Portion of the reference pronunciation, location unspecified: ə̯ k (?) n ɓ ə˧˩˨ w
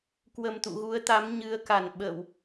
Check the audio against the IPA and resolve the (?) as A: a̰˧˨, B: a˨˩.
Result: B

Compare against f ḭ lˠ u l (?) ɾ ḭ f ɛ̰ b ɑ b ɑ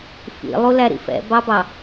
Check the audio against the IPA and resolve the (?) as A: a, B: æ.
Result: B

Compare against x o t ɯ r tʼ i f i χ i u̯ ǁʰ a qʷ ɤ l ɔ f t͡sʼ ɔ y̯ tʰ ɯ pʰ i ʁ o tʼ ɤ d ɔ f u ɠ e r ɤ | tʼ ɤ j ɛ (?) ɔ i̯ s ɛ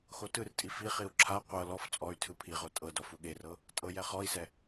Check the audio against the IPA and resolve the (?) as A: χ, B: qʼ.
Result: A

